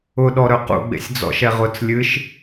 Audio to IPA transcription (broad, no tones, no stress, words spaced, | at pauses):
ʊɗɔɾœ qṵɡ͡bḛsʲ d͡zɔ̰ʃɛʁʊt͡s lʲɨʃ